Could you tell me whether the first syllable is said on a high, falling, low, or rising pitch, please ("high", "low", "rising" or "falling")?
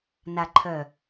low